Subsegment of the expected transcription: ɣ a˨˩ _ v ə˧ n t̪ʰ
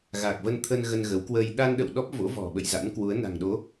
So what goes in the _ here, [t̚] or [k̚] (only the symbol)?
k̚